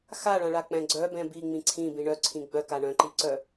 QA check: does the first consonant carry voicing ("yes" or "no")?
no